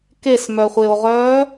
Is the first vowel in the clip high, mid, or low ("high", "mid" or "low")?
mid